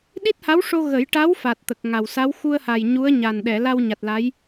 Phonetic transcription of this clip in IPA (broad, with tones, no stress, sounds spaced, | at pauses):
ɗ i˦˥ t̚ h a˧˥ w ʂ o˧ ɣ ə˨˩˦ j ʈ a˧˥ w f a˨˩ t̚ t̪ ə˨˩ k̚ ŋ a˨˩ w s a˧˥ w x u˧ ə̯ h a˨˩ j ɲ u˧˥ ə̯ ɲ a˨˩ n ɗ ɛ˨˩˨ l a˧ w ɲ a˨˩ t̚ l a˧˥ j